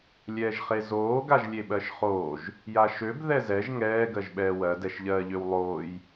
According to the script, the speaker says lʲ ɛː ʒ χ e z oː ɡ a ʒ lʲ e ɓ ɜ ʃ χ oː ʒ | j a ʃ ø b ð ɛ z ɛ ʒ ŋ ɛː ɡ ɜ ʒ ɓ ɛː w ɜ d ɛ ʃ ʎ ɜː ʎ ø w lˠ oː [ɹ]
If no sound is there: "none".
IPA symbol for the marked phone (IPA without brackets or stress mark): j